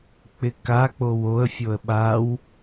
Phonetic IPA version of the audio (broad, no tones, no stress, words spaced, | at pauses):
k͡pɪkak͡pow oə̯fʲoə̯ ɓaw